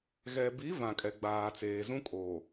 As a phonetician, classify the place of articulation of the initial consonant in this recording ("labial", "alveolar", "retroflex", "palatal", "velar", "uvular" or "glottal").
velar